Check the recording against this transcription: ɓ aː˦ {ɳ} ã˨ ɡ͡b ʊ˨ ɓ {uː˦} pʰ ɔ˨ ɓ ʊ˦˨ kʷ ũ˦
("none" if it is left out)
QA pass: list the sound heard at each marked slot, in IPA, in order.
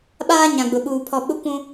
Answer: ɲ, uː˨

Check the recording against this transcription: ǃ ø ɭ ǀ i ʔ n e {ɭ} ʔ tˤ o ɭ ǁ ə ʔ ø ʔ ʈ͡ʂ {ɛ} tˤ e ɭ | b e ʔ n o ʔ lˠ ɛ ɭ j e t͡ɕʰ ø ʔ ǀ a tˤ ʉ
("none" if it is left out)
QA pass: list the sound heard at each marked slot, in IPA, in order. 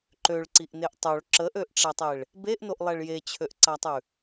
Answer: none, ɛ

